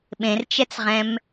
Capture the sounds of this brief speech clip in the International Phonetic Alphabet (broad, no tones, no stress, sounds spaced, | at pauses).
ɓ ẽ r t͡ʃ ɛ t͡s ʁ ɛ̃ m